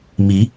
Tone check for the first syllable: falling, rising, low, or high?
rising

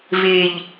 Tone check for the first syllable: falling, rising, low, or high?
low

